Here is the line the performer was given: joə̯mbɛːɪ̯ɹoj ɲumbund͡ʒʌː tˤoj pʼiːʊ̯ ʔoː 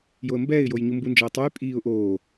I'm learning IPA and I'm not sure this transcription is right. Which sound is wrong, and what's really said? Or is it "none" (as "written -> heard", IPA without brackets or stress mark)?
ɹ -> j